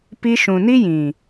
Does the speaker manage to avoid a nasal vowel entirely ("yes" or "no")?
no